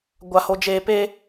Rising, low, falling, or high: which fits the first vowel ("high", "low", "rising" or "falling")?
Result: low